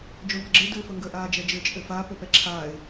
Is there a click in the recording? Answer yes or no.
yes